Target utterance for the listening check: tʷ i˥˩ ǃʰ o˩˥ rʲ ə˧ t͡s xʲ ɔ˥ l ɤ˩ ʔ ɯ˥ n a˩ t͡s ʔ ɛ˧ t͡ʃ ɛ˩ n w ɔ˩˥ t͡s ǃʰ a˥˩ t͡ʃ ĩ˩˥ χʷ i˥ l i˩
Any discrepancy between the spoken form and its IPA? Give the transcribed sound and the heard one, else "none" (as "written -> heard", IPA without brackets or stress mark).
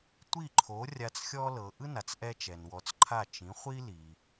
ə˧ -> a˧